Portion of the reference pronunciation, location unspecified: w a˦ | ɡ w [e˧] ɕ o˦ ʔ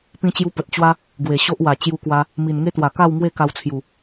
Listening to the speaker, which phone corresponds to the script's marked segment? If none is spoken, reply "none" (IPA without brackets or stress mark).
e˨˩